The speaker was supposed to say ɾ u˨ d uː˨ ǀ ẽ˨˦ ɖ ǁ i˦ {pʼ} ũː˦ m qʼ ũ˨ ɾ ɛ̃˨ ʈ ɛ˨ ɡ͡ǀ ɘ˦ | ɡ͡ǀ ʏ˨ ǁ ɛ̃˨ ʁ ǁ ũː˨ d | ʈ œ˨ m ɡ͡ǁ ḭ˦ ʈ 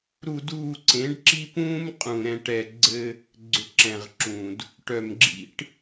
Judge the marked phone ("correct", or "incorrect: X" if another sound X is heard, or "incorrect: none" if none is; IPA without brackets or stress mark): incorrect: p